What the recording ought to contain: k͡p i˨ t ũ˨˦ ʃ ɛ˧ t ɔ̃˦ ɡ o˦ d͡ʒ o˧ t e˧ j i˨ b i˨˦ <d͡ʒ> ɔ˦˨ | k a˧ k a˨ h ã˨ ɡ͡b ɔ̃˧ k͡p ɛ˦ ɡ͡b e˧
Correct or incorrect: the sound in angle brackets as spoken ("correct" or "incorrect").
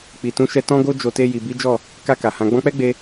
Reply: correct